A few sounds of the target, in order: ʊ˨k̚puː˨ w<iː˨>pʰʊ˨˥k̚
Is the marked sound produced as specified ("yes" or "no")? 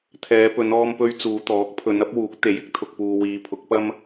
no